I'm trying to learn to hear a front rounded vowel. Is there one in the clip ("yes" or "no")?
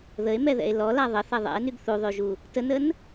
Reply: yes